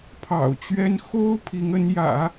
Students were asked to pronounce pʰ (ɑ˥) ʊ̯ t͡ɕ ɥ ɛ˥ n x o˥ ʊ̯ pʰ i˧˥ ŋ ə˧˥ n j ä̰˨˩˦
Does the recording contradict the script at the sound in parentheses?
yes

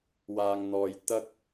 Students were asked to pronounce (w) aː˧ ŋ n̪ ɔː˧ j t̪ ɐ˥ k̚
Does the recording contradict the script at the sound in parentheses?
no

